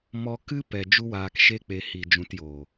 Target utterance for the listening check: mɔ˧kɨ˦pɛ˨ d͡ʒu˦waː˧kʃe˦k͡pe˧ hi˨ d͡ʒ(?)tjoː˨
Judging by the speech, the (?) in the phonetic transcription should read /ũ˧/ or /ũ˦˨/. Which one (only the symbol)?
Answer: ũ˧